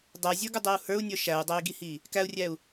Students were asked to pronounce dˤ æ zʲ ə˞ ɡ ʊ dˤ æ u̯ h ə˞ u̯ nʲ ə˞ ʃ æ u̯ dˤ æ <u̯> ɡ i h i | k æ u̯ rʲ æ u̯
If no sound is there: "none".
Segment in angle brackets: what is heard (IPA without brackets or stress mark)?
i̯